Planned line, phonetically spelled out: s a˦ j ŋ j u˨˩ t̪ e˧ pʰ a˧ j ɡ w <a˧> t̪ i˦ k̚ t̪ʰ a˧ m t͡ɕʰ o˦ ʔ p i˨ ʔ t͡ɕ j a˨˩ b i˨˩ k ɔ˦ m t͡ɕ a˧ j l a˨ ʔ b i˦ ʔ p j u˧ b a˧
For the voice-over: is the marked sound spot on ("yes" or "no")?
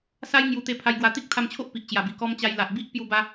yes